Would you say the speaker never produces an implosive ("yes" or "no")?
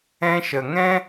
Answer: yes